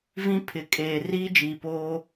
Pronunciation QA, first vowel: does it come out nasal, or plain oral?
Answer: nasal